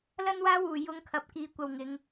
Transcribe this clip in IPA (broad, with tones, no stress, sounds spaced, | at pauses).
l ɐ˥ n w aː˥ w uː˨˩ j ʊ˨˧ ŋ kʰ ɐ˨ p̚ k iː˨˧ kʷ ɐ˨ w ŋ ɪ˨˧ ŋ